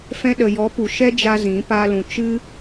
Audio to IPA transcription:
f ɛ̃˧ ɗ ə˨ j ɔ˨˦ p u˨ ʃ ɛ˦ d͡ʒ a˧ z ĩ˨˦ p aː˦ l ũ˧ t͡ʃ ɨ˦

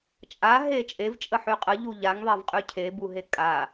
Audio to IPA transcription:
t͡ʃʼ a ɦ e t͡ʃʼ e v t͡ʃʼ ə ħ y qʼ ə ʎ u ʎ a ŋ ðˤ e v qʼ y cʰ e b u ɦ e kʼ a

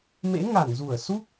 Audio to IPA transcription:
m ḛ˧˥ ŋ a˧˩ n z u˧˩ ə̯ s u˦˥ k̚

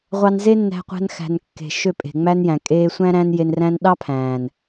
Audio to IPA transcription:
ʁʷ ɑ˧ n z e˦ nː æ̤˧ qʷ æ̤˧ n x æ̤˨ n kː e̤˨ ʃ ø˦˨ pʼ e̤˨ ŋ͡m æ˦ n j æ̃˨ kʼ eː˧ sʷ æ̃˦ ɾ æ̃˦ n j e˧ n r æ̃˦ n ɗ ɑ˦ pʰ æ̃ː˨ n

